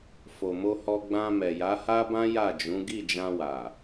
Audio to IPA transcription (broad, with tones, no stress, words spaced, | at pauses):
fo˨mo˧hɔ˧ ɡ͡bã˧mɛ˨ ja˨˦ha˦bã˦ ja˦˨d͡ʒũ˨˦ ɡi˦˨ d͡ʒã˧wa˨